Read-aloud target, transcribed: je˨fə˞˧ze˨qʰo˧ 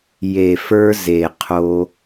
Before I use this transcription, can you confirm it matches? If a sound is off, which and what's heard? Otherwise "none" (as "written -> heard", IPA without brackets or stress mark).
none